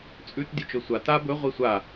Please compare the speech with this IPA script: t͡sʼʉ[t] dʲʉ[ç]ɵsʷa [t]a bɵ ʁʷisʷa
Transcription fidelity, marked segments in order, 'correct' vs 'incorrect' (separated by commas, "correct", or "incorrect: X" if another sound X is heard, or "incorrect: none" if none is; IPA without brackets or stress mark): correct, incorrect: t͡ʃ, correct